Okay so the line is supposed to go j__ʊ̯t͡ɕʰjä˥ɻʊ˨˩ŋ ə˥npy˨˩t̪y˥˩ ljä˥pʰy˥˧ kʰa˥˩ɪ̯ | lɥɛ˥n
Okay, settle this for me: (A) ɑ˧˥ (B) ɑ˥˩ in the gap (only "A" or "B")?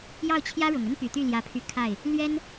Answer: B